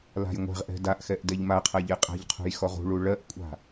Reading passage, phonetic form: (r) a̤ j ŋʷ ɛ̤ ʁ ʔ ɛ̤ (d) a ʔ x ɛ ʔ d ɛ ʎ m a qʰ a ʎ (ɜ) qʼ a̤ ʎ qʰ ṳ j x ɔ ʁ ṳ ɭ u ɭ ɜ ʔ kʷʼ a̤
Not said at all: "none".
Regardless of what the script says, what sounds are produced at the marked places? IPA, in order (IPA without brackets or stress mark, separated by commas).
l, d, ɛ